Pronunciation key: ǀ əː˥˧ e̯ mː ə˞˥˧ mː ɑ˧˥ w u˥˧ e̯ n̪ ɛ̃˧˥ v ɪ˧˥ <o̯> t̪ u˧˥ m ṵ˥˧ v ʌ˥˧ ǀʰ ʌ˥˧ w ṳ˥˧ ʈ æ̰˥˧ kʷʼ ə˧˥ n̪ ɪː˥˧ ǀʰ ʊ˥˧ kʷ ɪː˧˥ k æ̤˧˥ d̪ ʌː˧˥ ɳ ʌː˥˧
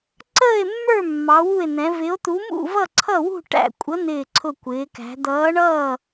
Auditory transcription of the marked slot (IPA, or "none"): o̯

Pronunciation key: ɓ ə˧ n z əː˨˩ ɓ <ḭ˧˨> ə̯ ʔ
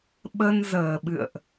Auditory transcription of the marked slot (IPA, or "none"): ɨ̰˧˨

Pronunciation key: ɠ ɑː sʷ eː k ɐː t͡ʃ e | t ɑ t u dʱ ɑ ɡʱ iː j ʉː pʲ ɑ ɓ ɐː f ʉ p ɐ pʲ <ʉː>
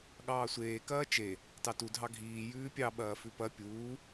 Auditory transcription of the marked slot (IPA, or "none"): uː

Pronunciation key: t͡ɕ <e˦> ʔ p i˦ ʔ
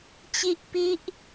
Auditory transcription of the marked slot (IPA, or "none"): i˦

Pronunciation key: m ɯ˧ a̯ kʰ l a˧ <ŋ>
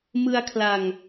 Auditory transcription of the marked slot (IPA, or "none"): ŋ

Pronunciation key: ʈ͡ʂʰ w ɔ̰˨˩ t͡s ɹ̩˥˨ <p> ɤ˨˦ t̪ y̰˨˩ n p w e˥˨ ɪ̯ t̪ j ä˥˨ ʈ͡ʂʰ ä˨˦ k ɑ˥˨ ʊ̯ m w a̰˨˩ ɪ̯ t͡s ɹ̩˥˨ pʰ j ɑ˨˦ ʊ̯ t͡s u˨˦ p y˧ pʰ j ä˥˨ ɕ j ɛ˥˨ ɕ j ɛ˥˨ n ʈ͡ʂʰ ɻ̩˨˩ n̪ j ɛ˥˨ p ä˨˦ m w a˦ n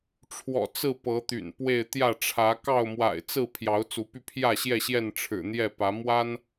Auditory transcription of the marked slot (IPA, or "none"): p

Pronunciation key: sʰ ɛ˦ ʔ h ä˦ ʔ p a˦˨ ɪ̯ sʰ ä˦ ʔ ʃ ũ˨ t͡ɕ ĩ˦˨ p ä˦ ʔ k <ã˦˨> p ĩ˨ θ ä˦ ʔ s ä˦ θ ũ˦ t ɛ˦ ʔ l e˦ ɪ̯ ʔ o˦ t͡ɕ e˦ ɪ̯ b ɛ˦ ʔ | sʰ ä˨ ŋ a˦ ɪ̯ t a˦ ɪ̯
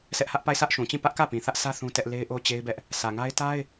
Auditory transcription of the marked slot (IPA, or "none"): ä˦˨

